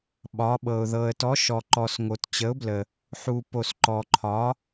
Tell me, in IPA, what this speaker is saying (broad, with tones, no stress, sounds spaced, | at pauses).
ɓ ɒ˨˥ ɓ ɤ˨ ʊ̯ ð ɤ˨ ə̯ t ɔ˨˥ ʃ ɔ˨ ǃ ɔ˨ s ŋ o˨ t t͡ɕ ə˨˥ ʊ̯ b l ə˨ | ħ u˨ p o˨ s ǃ ɔ˨ ǃʰ ɒ˨˥